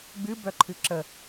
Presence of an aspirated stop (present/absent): present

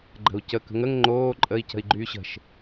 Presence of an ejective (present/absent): present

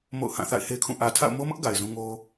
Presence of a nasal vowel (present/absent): present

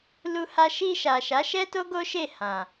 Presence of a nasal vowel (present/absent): present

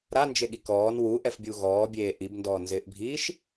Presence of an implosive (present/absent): present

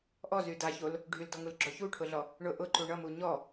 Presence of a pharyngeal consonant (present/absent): absent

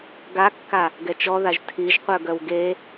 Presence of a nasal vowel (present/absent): absent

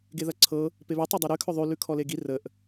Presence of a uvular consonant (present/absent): absent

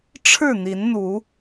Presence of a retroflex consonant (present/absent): present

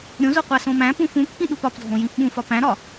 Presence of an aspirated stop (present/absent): absent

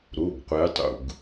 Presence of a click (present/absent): absent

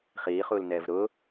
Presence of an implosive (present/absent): absent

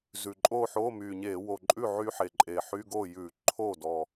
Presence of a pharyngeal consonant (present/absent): present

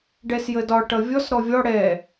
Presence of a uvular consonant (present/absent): absent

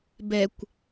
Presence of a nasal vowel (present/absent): absent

